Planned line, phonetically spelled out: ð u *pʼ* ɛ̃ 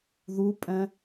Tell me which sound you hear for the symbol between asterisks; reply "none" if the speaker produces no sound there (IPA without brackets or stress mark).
pʼ